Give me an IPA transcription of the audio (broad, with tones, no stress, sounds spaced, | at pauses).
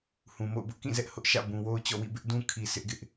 h ũ˨ m o̰˦˨ ʊ̯ b ʊ˦ ʔ k ĩ˦˨ z ɛ˦ ʔ h ʊ˦ ʔ ʃ ä̰˦˨ b ũ˨ w o˦ ʊ̯ t͡ɕ ɔ̰˦˨ w ḭ˦˨ b ɪ˦ ʔ d ũ˦ kʰ i˨ sʰ ɪ˦ ʔ ɡ ɪ˦ ʔ